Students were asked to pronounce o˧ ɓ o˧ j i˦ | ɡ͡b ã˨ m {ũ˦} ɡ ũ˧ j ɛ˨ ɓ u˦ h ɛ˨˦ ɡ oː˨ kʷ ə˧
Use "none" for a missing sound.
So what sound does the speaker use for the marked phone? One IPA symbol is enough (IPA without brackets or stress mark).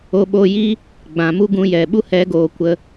u˦